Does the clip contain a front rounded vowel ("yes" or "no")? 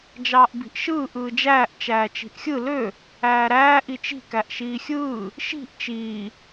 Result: yes